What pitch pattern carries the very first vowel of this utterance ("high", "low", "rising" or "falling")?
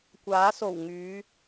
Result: rising